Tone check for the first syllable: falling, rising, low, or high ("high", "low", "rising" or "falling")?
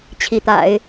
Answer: rising